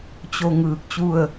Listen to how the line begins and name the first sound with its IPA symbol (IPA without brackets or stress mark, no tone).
t͡ɕ